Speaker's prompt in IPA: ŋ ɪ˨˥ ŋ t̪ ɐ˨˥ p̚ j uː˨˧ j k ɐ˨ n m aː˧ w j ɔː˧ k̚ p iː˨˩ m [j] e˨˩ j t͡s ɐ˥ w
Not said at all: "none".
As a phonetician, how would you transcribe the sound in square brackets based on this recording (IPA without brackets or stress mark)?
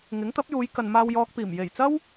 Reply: j